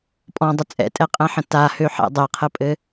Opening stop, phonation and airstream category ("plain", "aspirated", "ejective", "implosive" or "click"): ejective